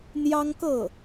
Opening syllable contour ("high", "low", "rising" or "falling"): high